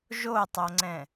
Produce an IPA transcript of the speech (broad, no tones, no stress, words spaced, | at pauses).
ʒotˤoŋ͡ǀɛ̃